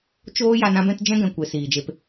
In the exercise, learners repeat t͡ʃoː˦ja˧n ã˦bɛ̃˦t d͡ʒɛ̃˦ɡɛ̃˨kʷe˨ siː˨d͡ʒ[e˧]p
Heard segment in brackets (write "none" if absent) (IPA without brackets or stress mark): e˧